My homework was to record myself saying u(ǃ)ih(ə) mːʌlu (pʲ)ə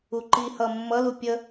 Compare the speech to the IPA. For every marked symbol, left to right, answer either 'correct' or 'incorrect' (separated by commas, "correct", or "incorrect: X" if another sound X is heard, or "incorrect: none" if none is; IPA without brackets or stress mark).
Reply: correct, incorrect: ʌ, correct